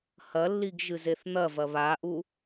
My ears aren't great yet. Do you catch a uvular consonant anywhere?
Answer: no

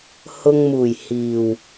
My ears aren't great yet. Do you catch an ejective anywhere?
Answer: no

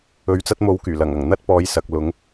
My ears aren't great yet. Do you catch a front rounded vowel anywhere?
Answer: yes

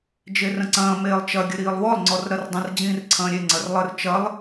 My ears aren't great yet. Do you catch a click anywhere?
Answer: yes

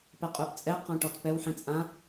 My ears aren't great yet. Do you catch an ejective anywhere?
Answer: yes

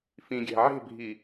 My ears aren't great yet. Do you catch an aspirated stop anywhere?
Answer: no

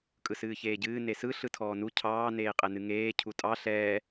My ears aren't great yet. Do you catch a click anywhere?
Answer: no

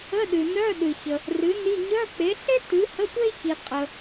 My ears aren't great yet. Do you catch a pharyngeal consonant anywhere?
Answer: no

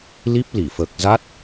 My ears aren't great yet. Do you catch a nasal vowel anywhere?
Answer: no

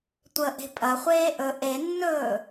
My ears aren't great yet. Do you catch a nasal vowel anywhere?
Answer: no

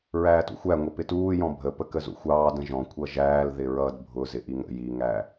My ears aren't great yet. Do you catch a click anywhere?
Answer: no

